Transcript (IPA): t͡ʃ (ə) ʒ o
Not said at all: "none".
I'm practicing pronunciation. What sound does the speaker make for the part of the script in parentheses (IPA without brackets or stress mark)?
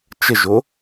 ə